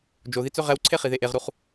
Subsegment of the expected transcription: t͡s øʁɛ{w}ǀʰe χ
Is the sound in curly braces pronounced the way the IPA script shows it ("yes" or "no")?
yes